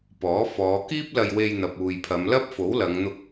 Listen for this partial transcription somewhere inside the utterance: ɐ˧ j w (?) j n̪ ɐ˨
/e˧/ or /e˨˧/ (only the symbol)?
e˧